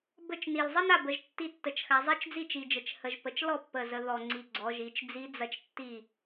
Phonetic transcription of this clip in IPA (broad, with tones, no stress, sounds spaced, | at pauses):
b ə˥˩ t͡ʃ n i˨˩ l zˤ ə˥ n a˥˩ b ə˩˧ ʒ tː i˧˥ tː ə˩˧ t͡ʃ x a˩˧ zˤ i˧˥ t͡ʃ d͡z i˥˩ t͡ʃ i˨˩ d͡ʒ ə˨˩ t͡ʃ h ə˨˩ ʒ p ə˩˧ t͡ʃ l ɔ˥˩ pː ə˨˩ z ə˩˧ ð ɔ˨˩ ŋ͡ǀ i˨˩ ɡ͡ǀ ɔ˩˧ ʒ i˩˧ t͡ʃ d͡z i˧˥ d͡z ɐ˥˩ t͡ʃ tː i˥˩